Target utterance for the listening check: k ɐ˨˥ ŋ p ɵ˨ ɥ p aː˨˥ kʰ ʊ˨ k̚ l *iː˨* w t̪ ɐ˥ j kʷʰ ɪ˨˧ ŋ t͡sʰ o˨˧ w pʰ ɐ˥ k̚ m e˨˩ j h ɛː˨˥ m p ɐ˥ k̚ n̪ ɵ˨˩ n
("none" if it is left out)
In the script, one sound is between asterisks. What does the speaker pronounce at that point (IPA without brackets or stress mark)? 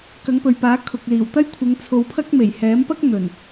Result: iː˨˩